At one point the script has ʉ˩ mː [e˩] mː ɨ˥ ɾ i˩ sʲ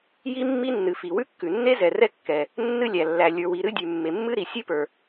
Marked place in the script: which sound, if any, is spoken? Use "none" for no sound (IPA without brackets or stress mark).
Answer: e˩